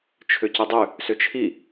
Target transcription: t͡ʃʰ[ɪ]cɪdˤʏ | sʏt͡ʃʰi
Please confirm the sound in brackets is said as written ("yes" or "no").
no